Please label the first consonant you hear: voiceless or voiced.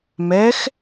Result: voiced